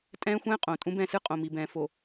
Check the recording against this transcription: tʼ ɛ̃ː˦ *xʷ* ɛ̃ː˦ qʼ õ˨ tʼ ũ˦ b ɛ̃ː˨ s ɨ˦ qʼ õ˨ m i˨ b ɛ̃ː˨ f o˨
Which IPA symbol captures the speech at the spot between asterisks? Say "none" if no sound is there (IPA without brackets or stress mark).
xʷ